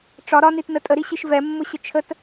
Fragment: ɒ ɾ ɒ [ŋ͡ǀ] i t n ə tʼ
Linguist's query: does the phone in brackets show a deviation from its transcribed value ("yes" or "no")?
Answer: yes